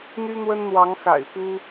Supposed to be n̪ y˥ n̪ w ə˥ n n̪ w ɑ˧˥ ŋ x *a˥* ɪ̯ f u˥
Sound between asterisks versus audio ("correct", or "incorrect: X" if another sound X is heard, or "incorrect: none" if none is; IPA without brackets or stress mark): incorrect: a̰˨˩